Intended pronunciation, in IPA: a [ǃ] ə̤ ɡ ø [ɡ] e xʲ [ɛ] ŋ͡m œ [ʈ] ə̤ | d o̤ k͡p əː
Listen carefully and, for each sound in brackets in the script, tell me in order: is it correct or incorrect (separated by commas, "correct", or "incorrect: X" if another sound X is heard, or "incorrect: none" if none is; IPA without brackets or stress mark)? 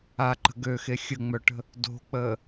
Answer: correct, incorrect: x, incorrect: ə, correct